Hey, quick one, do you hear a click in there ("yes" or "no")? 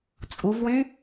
no